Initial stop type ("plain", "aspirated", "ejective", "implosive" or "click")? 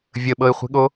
implosive